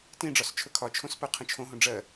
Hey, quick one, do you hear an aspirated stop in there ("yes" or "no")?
yes